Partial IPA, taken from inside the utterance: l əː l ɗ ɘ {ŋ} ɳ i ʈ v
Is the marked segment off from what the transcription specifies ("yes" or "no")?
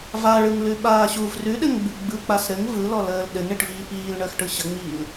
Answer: no